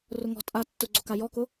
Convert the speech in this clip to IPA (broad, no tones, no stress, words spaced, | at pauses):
rʊŋɔ̤ tʼa tːʊɡ͡ǀoka jɔkʊ